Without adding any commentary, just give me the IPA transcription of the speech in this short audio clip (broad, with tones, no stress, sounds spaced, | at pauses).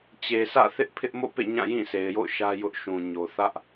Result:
t͡ɕ e˨ sʰ ä̰˦˨ θ ɪ˦ ʔ pʰ ɪ˦ ʔ m o̰˦˨ p ḛ˦˨ ɲ ã˦˨ j ĩ˦˨ s e˨ ɪ̯ j o̰˦˨ ʊ̯ ʃ ä˦ j ʊ˦ ʔ ʃ ũ˨ ɲ o˨ θ ä˦ ʔ